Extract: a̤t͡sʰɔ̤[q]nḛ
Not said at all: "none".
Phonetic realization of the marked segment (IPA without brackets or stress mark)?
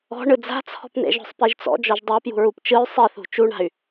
p